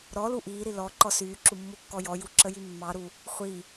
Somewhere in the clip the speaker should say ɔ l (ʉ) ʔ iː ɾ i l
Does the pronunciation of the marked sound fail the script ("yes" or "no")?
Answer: yes